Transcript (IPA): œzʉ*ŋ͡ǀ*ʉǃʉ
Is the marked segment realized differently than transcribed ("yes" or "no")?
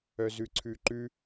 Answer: yes